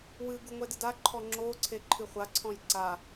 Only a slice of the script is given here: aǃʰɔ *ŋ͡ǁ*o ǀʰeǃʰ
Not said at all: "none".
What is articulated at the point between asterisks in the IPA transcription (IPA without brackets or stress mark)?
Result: ŋ͡ǁ